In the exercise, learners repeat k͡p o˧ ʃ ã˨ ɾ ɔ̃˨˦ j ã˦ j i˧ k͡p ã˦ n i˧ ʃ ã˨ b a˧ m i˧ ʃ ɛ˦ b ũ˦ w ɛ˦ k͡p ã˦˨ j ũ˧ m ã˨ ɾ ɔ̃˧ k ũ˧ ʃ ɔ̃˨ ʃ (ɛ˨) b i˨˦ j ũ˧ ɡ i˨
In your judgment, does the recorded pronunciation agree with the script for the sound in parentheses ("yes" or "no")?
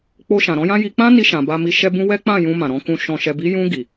yes